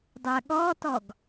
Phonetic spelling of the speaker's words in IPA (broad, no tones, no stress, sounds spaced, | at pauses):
dˤ ɜ ɠ ɔ t ɔ ɡ